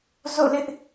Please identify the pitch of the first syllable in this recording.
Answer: falling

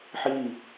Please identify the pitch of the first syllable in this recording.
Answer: falling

